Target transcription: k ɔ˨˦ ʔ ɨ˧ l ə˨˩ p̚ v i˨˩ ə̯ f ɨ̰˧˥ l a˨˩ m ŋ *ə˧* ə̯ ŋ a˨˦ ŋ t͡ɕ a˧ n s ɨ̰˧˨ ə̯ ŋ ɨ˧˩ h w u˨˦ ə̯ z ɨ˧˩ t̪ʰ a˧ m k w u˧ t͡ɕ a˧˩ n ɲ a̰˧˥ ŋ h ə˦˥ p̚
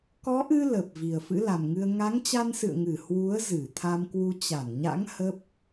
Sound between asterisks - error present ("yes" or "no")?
yes